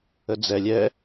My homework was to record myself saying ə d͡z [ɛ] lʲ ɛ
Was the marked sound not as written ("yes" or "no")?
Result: no